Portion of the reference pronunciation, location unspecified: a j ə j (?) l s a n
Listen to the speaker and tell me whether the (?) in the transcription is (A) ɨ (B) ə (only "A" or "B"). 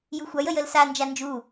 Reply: B